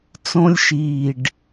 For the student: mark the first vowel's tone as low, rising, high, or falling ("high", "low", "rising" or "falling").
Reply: high